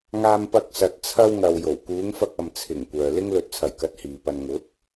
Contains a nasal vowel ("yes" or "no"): no